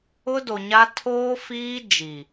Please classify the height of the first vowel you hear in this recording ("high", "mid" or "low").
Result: high